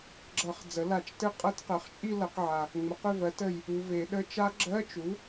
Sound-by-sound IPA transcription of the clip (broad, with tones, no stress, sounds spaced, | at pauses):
ɡ͡ǁ ʌ˨˩˦ χ d͡z ə˩˥ l a˨˩˦ t͡ʃ t ɘ˦˥ qʼ ʌ˧˥˧ t q ɜ˩˥ χ t͡ʃʼ i˥˧ l ʌ˨˩˦ q ʕ a˨ | ŋ͡m ə˩˥ q ʏ˥˧ v ɜ˩˥ t ə˨ j | u˨ v e˨˩˦ ɗ ə˧˥˧ t͡ʃ a˦˥ ɡ͡ǁ ɜ˧˥˧ t͡ʃ u˩˥